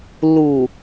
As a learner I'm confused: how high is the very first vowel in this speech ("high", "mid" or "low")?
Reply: high